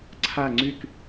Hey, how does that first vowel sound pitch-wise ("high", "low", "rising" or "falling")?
falling